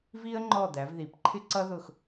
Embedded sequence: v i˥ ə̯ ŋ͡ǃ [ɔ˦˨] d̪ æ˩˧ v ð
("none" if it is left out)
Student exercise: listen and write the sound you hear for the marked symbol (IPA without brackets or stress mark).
ɔ˦˨